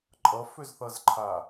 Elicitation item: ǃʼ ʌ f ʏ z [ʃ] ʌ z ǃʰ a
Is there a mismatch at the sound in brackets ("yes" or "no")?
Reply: yes